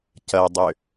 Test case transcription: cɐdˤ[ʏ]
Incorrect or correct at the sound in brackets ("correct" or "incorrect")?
correct